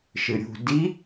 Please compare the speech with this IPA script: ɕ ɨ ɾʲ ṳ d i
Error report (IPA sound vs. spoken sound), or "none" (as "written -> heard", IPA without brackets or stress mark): ɕ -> ʃ